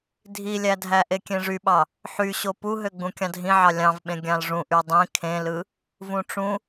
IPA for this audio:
dʱ i lʲ æ dʱ æ ʔ e kʲ ẽ ʐ y ɓ ɑ | ħ y ɕ o p u ɦ ø ɡ͡b ũ kʲ ɑ̃ dʱ ĩ ʕ ɑ lʲ ɑ̃ v ɓ ẽ ɡʲ ɑ̃ l ʐ ũ ʔ y dˤ ĩ kʰ ẽ l ɯ | v ũ ʈ͡ʂ ũ

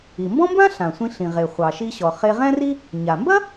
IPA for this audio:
i˩ m b ɔ̃˥ m b ã˥ ɬ ã˩ sʷ ĩ˧ ɬ ĩ˩ ʁ e˩ χʷ ɑ˩ ʃ i˧ ɕ ɔ˩ χ e˧ ʁ ɛ̃˥ r i˥ | ɲ a˩ m b ɐ˥

